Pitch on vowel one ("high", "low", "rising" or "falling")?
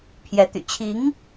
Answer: rising